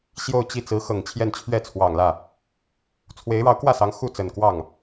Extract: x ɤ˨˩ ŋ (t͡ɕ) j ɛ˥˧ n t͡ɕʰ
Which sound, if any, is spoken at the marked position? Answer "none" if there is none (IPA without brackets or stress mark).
t͡ɕʰ